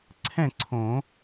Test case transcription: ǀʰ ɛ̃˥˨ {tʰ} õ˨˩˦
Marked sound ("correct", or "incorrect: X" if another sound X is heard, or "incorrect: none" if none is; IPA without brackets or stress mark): incorrect: ǀʰ